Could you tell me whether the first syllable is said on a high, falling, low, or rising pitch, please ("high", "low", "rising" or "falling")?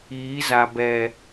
rising